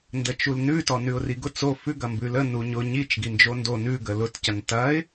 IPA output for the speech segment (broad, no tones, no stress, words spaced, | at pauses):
ndət͡ʃulnʉ tɔnʉʊ̯riɡʊ t͡so fʉ ɡɐmbʉlə nuɲʊ ɲit͡ʃ ɡind͡ʒondo nʉ ɡəlʊt cɐntɐɪ̯